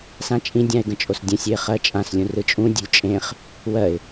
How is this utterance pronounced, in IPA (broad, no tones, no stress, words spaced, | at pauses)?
sãt͡ʃʼĩdʲãɪ̯ ɡə̃t͡ʃʼosdʲə̃sʲøɪ̯ χɜt͡ʃʼãslʲũ rɯt͡ʃʼũdʲṳlʲ t͡ʃʼẽχ | wɜɪ̯